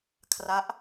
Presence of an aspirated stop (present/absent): present